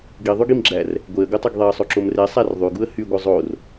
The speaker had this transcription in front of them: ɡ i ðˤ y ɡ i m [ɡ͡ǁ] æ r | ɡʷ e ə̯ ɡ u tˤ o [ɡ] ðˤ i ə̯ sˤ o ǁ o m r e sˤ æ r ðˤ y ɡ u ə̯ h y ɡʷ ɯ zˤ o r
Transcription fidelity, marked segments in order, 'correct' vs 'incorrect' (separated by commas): correct, correct